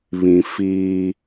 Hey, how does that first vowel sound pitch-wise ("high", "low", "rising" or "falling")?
low